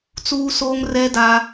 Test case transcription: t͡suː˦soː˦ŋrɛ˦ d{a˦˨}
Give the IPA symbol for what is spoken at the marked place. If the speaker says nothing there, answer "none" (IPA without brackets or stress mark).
a˦